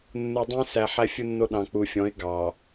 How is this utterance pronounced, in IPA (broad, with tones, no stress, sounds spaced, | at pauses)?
nː u˨ dˤ ẽ˦ s æ˨ ħ æ˦ fʲ u˦ nː o˦ ɗ ɑ̃˨ k͡p u˨ fʲ ɔ̃˨˦ ɪ̯ ɡ ɑ˨